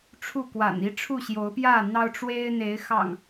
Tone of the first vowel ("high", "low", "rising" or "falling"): falling